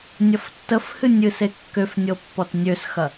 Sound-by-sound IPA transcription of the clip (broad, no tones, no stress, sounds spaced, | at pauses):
nʲ ɐ f tː ə f h ɨ nʲ ɨ s e kː ø f nʲ ɤ pː ɔ t nʲ ø s x ɐ